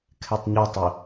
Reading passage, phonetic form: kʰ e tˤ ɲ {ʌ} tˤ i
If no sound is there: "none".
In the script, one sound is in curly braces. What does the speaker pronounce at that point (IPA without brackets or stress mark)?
ɒ